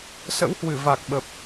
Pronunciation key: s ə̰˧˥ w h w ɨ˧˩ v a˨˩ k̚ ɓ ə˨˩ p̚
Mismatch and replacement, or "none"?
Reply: none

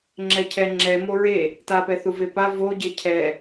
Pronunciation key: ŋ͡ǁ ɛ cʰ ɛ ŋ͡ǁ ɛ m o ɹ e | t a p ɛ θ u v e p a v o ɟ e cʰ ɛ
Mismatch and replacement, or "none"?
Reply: none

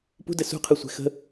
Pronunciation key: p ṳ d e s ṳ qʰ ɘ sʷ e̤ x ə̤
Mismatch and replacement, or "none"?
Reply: e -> ɘ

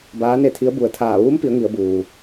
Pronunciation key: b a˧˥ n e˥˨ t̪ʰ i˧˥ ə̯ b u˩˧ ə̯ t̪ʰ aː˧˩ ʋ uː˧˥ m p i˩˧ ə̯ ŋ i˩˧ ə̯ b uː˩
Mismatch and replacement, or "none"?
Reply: a˧˥ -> aː˧˥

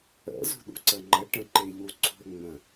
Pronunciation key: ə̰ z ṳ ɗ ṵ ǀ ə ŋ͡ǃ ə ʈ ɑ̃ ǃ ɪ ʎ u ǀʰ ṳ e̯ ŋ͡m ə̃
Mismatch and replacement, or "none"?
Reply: ɑ̃ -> ə̃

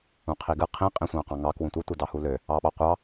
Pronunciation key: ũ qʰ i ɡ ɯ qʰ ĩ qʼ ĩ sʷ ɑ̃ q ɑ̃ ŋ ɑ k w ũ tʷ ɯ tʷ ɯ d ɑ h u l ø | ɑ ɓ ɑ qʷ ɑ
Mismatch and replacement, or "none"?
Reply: none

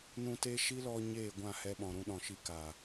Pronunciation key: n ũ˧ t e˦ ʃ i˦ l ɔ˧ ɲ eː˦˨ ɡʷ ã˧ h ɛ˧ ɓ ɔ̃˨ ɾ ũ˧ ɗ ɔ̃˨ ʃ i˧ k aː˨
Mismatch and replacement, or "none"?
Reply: ã˧ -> ã˦˨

